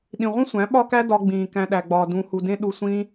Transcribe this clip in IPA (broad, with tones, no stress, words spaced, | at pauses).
ɗĩ˨ʁʷĩ˦sʷæ̃˨˦ ɓɒ˦kæ˦dɒ˧ ɡ͡bĩː˨kæ̃˧ ɗæ˧ɡ͡bɒː˧ dũ˧hu˧ dẽ˦ ɗu˧ sʷĩː˦